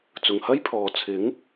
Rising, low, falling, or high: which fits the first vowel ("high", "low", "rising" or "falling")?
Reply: low